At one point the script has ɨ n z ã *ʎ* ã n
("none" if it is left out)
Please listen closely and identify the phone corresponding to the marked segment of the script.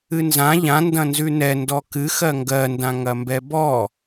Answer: ʎ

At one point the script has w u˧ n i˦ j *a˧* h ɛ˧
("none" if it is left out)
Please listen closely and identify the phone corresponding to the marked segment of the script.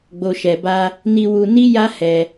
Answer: a˦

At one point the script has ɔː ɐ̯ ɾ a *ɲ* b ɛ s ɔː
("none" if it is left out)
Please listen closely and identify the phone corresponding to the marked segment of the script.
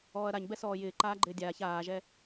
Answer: ɲ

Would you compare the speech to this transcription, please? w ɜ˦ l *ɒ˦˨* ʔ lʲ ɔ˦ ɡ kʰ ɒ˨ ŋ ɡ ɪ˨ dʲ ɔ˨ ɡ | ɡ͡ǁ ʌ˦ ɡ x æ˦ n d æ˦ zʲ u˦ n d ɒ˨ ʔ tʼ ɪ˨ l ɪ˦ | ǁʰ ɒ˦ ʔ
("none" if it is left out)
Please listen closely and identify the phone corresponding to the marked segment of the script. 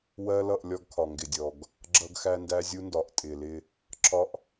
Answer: ʌ˦˨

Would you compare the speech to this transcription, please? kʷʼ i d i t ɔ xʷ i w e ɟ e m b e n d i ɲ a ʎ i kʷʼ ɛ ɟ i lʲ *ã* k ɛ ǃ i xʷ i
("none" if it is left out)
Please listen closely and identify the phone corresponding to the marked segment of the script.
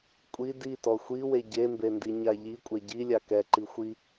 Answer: a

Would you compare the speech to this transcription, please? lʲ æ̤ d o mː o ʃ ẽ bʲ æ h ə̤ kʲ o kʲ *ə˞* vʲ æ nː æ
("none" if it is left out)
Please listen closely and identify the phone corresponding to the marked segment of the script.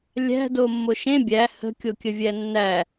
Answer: ə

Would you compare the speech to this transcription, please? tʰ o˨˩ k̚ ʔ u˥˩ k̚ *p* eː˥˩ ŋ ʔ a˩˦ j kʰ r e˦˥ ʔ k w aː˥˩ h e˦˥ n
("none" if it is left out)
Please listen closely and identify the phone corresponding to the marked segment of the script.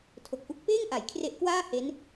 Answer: p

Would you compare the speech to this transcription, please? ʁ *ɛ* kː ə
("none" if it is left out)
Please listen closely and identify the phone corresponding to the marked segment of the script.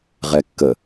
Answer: ɛ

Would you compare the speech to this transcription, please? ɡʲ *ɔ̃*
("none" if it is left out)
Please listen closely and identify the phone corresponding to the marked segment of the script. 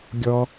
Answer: ɔ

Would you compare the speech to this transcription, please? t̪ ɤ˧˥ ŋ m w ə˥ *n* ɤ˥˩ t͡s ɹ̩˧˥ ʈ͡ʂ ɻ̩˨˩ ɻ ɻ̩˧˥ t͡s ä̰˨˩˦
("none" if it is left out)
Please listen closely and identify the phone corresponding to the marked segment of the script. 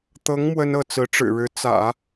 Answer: n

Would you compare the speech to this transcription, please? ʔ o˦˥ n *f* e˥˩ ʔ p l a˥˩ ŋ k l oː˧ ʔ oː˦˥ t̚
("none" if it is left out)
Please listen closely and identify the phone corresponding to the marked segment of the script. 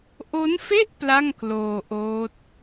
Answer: f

